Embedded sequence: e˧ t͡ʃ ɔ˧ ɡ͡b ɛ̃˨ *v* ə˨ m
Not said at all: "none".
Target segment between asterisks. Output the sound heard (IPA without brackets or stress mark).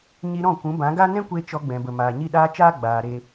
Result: b